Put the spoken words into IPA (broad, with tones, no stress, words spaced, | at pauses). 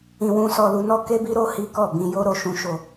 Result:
ĩ˧wũ˦sɔ˧ lu˧nɔ˦ ke˦bi˦ ɾo˦hi˦kɔ˦˨ bĩ˧jo˦ ɾo˧ʃũ˦ʃo˧